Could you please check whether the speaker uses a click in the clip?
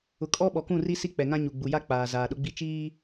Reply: no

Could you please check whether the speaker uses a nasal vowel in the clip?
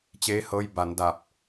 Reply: no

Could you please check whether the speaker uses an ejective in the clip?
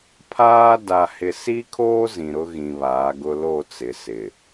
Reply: no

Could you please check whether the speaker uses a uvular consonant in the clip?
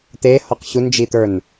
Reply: yes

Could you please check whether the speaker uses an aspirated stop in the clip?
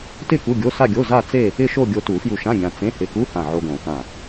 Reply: no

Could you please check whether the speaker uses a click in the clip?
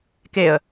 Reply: no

